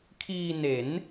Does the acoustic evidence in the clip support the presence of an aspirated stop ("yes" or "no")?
yes